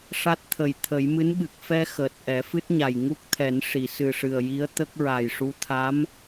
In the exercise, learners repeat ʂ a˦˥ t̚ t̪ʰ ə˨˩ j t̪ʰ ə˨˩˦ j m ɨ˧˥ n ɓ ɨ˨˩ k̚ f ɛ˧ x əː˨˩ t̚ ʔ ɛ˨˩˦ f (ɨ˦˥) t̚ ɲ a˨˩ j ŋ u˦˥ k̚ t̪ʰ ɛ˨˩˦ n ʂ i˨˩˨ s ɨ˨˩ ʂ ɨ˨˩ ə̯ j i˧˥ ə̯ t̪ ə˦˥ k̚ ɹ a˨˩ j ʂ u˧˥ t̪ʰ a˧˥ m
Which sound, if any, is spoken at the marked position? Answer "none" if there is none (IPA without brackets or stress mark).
ɨ˦˥